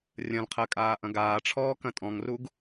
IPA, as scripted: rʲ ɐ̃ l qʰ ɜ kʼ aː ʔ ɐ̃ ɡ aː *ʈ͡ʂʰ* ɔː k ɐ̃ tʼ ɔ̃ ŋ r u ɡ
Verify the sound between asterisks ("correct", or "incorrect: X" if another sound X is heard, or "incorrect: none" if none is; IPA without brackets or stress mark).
correct